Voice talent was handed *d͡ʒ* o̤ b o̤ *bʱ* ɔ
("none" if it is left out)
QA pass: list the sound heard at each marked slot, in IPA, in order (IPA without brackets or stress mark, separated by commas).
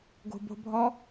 ɡ, bʱ